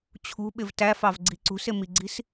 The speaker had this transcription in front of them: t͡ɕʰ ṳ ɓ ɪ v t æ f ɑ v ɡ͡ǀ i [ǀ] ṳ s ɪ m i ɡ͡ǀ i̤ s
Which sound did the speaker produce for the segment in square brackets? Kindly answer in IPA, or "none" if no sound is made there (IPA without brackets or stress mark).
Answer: ǀ